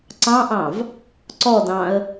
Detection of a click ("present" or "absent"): present